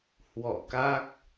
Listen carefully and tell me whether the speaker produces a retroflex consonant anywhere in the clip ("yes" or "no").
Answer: no